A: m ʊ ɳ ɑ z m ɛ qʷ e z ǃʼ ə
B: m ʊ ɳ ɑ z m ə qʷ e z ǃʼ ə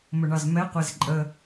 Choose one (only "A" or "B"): A